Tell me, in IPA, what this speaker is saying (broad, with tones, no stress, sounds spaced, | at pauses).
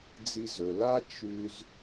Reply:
d͡z i˧ z ɵ˩ l a˥ t͡ʃ ʉ˧ z